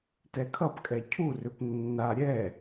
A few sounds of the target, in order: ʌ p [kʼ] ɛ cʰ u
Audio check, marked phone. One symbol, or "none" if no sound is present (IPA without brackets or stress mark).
kʼ